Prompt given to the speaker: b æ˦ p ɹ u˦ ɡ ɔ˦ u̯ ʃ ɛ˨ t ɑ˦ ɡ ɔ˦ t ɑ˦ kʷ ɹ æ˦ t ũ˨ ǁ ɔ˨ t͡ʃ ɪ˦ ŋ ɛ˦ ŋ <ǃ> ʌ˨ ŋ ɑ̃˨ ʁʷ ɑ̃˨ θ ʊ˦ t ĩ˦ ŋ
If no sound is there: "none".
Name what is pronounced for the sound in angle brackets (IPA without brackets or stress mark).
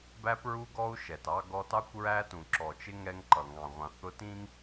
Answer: ǃ